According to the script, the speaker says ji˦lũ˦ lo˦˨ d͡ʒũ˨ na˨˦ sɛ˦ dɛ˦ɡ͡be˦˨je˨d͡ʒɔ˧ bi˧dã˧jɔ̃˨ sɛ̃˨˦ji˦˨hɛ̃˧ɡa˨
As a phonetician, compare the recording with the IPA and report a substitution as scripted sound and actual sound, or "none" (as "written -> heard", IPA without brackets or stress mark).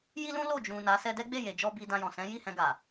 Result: none